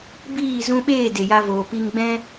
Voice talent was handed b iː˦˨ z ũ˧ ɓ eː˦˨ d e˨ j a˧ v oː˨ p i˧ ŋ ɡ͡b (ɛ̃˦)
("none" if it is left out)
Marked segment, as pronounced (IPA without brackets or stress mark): ɛ̃˦